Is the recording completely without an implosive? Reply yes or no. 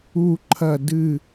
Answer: yes